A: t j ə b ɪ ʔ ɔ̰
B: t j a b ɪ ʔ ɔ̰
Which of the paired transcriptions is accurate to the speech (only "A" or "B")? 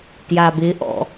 B